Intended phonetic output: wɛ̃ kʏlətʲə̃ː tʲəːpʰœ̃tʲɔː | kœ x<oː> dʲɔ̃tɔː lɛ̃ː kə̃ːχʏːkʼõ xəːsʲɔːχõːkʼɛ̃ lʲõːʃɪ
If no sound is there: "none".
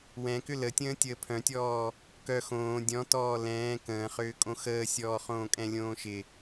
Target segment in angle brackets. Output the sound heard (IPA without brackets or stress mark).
õː